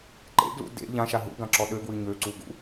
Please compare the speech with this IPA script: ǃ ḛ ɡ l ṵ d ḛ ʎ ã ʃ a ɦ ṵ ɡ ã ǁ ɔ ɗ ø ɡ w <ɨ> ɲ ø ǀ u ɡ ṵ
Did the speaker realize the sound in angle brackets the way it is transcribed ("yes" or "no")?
yes